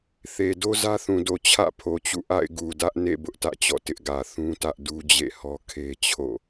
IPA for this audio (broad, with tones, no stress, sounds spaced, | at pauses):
θ e˨ d o˦ z ä˦ θ ũ˨ d o˨ t͡ɕʰ ä̰˦˨ pʰ o˨ t͡ɕ ṵ˦˨ ʔ a̰˦˨ ɪ̯ ɡ u˨ d ä˦ ʔ n ḛ˦˨ b ʊ˦ ʔ t ä̰˦˨ t͡ɕ ɔ̰˦˨ t ɪ˦ ʔ ɡ ä˨ θ ũ˦ t ä˦ ʔ d u˦ d͡ʑ ḛ˦˨ h ɔ˦ kʰ e˦ t͡ɕʰ o̰˦˨